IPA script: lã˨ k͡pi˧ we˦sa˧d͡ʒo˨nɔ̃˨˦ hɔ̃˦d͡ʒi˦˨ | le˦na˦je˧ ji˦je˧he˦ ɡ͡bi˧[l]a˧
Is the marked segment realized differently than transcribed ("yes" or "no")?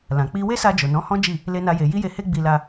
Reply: no